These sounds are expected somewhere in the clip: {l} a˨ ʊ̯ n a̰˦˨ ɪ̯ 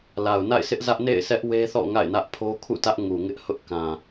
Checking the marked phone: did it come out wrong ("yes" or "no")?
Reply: no